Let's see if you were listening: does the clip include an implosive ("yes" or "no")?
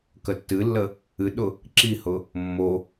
yes